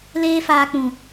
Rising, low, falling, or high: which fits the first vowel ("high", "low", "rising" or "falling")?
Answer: high